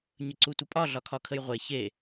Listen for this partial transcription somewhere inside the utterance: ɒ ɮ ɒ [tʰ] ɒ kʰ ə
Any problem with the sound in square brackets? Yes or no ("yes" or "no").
yes